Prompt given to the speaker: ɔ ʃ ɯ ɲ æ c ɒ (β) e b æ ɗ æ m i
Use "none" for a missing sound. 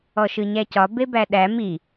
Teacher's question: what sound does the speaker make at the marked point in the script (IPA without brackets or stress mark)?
b